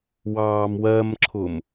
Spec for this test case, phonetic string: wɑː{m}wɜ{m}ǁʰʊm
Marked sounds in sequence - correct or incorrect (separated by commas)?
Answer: correct, correct